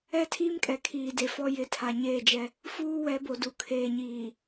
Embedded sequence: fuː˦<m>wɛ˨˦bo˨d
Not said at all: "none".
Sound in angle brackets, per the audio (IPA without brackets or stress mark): none